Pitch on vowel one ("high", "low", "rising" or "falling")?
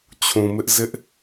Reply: low